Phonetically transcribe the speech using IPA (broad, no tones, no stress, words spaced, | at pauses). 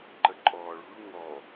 ǃəǃʼɔːɭṳɭ ŋɔ